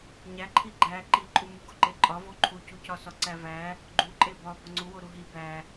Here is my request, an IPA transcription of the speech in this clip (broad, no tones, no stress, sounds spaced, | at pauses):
ɲ æ ǃʰ i ɡ͡ǃ æ ǃ i ǃʼ u m u ɡ o ǃ e ǃʼ ɒ v o ǃʰ u c u c ɒ s ɒ ǀ æ v æ | ɡ͡ǃ u ǃʼ e b ɒ b ɒ ŋ͡ǀ u w o ɾ u ɦ i b æ